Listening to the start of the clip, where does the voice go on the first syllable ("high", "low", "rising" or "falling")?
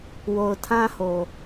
low